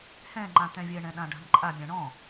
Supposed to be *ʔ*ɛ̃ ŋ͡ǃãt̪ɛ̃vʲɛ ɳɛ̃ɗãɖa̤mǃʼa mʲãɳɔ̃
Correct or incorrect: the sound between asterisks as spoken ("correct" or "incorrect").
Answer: incorrect